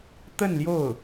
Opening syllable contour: falling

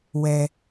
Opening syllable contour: high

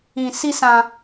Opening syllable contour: high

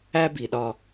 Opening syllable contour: high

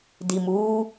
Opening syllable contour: low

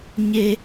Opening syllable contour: high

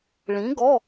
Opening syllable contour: rising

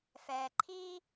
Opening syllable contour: low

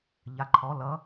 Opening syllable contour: rising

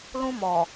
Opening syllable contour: high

